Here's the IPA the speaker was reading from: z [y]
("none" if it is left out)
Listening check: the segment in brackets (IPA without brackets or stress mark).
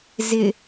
ɪ